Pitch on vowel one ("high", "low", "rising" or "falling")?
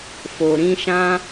low